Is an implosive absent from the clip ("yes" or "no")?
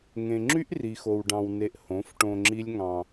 yes